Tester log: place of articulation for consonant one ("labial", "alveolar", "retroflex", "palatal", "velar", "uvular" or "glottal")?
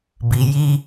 labial